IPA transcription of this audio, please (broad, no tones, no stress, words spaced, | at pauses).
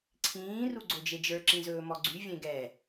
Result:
ǀʰĩː ruɡ͡ǀod͡ʒed͡ʒə˞ ǁĩzɵːmɔɡ͡ǀy vʲẽɡɛ